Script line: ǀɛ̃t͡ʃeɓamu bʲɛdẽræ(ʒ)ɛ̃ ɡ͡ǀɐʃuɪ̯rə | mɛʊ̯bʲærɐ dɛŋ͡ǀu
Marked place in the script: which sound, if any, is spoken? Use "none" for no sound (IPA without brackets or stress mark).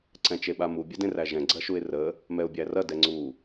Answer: ʒ